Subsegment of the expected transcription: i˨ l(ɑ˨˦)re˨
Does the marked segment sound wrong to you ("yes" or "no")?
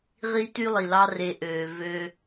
yes